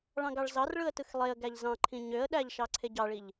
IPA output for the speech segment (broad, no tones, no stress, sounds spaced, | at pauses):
ɭ ɑ̃ ɡ ɑ ɭ z ɑ r ɭ ɯ ə̯ t ɯ x lˠ e ə̯ ɡ æ ʎ z ɑ̃ ǃʰ ĩ ɲ ø ə̯ ɗ æ ʎ ʃ ɑ ǀʰ e ɟ ɑ ɭ i ʎ